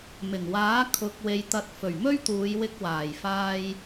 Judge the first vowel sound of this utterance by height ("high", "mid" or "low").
high